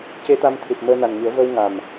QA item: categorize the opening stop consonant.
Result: plain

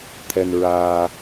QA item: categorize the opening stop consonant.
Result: aspirated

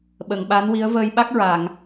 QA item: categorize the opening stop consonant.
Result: implosive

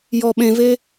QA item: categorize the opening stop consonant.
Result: implosive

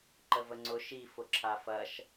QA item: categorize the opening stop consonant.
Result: click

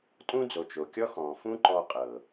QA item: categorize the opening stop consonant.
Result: ejective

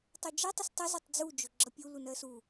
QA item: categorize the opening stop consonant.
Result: plain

